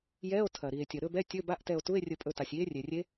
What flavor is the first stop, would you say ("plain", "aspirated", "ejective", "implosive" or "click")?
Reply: aspirated